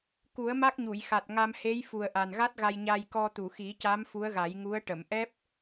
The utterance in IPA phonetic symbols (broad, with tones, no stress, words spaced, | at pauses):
ku˨˩˦ə̯ ma˦˥k̚ɲu˨˩˨jxa˨˩t̚ ŋa˧mhe˧˥jfu˨˩ə̯ ʔa˨˩nɣa˦˥t̚ɣa˧j ɲa˧j kɔ˧t̪u˨˩˨xi˨˩˦ca˧˥m fu˧˥ə̯ɣa˨˩˦jŋu˧˥ə̯ ʈə˨˩˨mʔɛ˦˥p̚